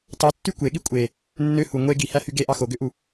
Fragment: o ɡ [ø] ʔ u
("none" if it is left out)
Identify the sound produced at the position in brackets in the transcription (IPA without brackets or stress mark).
ø